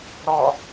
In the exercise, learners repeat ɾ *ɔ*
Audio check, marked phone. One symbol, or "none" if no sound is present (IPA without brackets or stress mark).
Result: ɔ